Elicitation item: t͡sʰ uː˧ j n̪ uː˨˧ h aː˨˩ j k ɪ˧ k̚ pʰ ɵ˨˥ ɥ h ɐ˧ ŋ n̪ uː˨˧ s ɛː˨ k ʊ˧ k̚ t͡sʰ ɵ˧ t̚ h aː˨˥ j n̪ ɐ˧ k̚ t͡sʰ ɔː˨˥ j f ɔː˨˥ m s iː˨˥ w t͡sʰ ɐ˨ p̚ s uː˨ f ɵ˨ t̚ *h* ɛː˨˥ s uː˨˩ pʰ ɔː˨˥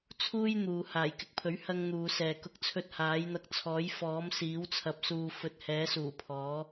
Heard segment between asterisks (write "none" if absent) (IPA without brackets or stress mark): h